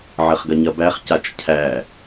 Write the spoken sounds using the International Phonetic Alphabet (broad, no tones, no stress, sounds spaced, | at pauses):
ʕ ɐ χ ɡ ɐ ɲ ɐ b æ χ c a t͡ʃ cʰ æ